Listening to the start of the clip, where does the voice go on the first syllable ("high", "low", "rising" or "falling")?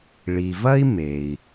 low